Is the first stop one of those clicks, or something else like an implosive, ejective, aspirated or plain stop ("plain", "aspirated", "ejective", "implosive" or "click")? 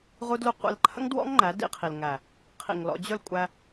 plain